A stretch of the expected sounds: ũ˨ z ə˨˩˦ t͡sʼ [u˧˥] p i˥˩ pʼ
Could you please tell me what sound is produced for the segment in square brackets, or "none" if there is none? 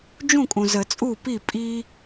u˥˩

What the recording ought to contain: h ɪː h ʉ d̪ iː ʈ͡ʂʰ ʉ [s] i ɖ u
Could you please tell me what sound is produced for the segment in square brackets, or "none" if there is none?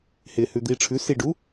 s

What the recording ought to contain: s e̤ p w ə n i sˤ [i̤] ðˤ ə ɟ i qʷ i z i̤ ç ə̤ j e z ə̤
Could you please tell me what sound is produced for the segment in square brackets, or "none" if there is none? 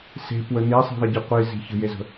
i̤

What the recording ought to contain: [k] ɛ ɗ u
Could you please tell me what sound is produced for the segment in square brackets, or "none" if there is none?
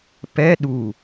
p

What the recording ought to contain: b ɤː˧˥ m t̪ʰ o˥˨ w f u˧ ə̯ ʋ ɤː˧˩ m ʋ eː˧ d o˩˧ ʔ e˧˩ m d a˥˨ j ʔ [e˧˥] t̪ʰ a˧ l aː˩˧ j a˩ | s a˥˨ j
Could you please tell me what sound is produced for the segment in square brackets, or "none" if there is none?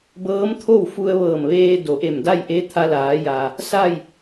e˧˥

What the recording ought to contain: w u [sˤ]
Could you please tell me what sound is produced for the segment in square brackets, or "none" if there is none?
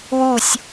sʲ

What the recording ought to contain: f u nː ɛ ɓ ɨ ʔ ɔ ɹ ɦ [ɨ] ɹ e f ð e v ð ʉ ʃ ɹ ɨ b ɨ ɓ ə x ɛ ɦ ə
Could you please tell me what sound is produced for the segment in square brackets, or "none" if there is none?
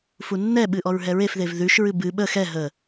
ɛ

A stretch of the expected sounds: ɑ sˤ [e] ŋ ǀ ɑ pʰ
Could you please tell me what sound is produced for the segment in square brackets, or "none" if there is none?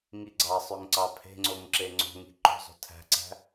ø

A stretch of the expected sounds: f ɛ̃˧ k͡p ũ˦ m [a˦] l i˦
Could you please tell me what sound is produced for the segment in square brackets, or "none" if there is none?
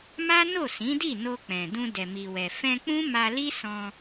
a˧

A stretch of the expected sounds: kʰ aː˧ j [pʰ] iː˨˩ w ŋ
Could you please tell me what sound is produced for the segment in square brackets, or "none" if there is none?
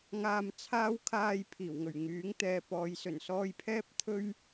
pʰ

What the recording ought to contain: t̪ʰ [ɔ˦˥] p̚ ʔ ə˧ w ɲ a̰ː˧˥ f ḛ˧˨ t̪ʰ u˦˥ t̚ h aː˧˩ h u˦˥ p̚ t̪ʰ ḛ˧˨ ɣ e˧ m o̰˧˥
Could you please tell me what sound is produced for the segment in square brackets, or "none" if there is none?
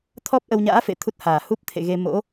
ɔ˦˥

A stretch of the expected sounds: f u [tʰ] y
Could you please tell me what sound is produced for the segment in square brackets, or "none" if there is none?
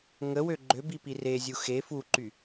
ǃ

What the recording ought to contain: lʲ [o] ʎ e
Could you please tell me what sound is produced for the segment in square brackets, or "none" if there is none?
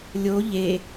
o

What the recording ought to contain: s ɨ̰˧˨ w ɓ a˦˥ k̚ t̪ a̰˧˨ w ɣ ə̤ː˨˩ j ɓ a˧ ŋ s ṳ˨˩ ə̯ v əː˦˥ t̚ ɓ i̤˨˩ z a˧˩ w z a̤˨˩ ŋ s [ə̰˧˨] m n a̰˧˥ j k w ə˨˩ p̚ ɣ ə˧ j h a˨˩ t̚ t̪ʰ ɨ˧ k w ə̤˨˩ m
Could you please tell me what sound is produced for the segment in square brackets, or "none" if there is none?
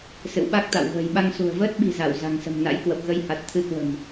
ə̤˨˩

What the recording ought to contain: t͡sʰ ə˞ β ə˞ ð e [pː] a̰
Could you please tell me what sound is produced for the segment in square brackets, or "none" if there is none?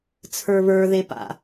p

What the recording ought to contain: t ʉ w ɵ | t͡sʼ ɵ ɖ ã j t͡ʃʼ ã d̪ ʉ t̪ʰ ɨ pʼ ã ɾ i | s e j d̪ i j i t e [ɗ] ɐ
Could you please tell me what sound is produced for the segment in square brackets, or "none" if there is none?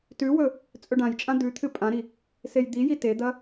d̪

